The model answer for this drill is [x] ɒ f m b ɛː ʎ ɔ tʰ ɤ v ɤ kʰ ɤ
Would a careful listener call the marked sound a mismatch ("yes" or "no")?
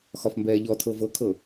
no